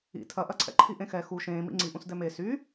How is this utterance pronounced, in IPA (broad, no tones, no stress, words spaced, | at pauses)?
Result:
ḭ tʰɐʔɐǀʰɛ̰ǃʰi ʔẽxɛ xu ʃẽːmḭ ŋ͡ǀiʔũs dɛme sy